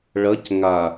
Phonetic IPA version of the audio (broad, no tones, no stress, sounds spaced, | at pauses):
ɭ ɐ c ŋ a